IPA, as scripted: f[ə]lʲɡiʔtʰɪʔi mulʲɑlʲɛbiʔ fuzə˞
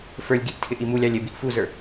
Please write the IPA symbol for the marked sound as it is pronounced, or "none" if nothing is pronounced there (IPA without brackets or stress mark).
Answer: ə˞